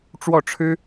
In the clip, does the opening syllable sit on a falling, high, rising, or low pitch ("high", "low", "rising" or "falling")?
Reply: falling